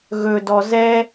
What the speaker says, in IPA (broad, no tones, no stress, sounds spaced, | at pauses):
ɣ ɵ d ɔ z ɛ